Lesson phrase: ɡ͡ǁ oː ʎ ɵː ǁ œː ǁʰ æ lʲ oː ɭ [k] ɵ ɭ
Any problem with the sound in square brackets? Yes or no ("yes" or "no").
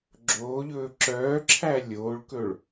no